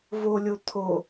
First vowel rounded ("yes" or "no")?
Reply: yes